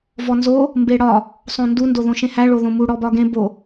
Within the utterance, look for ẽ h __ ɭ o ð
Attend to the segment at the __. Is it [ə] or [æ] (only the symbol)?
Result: æ